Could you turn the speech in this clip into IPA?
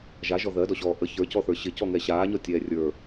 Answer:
ʒaʒɔ ðɜdɔɕɔː ʔə çə˞cɔθə˞ ɕɪcɔŋɛ ɕaːɲɔtʲɛː rʲə˞

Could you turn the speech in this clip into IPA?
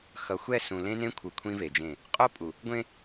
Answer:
xʌ˨xʷɛ˦˨sũ˨ lẽ˦nẽ˦kʷʰɯ˨ kʷʰĩ˦ve˨d͡ʒẽ˦˨ | qʼo˦pʼu˨ | ɡʷẽ˦

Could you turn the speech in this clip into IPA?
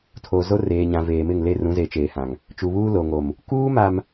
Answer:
tʰo˨ zo˦reː˨ɲã˨ veː˨mɪ˦˨ŋle˦˨ rũ˨˦ze˨t͡ʃeː˨hã˨ŋ | t͡ʃu˨βuː˦lo˨ŋo˨m | kuː˦ma˨m

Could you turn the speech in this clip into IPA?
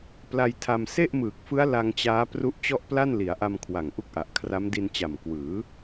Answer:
pla˧jtʰa˧m se˥˩ʔmɯː˨˩k̚fɯ˦˥a̯ la˧ŋt͡ɕaː˦˥ pru˦˥ʔ t͡ɕɔ˥˩ʔpla˥˩nli˩˦a̯ ʔa˧mkʰwa˨˩ŋ ʔu˥˩k̚ʔa˨˩ʔ kʰra˦˥mdi˧nt͡ɕa˨˩m kwɯː˩˦

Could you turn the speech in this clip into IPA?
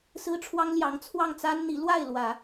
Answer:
sɹ̩˥ʈ͡ʂʰwɑ˥ŋljɑ˧˥ŋ t͡sʰwɑ˥˩ŋt͡sa˥nn̪i˧˥ lwa˥˩ɪ̯lwä˨˩˦

